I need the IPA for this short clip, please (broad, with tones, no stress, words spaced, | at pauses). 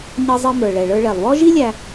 ɲʌ˧zˤʌ˧mə˞˩ ɭɛ˩ɭə˞˧ɭɛ˩lˠwɔ˥ ʒi˥lʲæ˧